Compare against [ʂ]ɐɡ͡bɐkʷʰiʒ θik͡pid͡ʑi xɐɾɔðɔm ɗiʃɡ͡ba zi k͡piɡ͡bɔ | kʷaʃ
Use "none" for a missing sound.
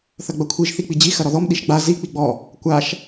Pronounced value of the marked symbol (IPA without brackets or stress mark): θ